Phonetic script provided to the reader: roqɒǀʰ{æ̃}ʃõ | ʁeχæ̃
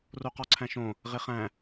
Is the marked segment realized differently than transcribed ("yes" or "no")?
no